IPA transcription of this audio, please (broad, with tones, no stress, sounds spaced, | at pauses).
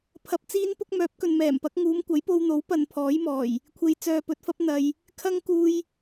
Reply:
pʰ ɐ˧ p̚ t͡s iː˥ n p ʊ˥ k̚ m œː˨˥ p̚ k ɵ˨ n m ɛː˨˩ m p ɐ˨˥ k̚ ŋ uː˨˧ m kʷ ɐ˨˥ j p o˧ w n̪ o˨˥ w p ɐ˧ n pʰ ɔː˨˥ j m ɔː˨˩ j | kʷʰ e˧ j t͡s œː˧ p ɵ˧ t̚ f ɐ˥ p̚ n̪ ɐ˨ j | kʰ ɐ˥ ŋ k uː˧ j